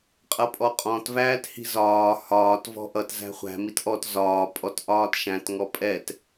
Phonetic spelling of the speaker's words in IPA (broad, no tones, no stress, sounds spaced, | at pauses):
qʼ ʌ pʼ ɔ qʼ ɔ̃ t v æː t h i̤ z ɒː h ɒː t v ɔ̤ ʔ ʌ t z æ̤ χʷ æ̤ m i t ʔ ɔ t z ɒː pʼ ɔ t ʔ ɒː t ʃ æ̃ t ŋ ɔ pʼ ɛ t